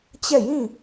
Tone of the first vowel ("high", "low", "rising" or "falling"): falling